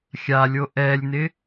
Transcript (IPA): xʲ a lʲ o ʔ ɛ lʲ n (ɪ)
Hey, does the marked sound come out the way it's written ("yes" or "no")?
yes